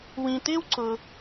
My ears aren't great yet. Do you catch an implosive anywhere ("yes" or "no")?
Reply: no